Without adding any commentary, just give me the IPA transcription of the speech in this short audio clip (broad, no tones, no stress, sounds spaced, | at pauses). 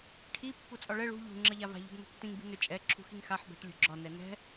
ʈʰ i pː u t͡sʼ ɒ ɭ ɛ ɭ ṳ ʎ ṳ ŋ͡ǁ ʌ ʎ a v a̤ ʎ ṳ b n ṳ tː ĩ ŋ b i̤ n ʏ t͡ʃʼ ɛ ǁʰ ṳ x i ŋ x a ħ b ɛ̤ ʈ lʲ ṳ ɡ͡ǁ ɒ n ɛ n ɛ̤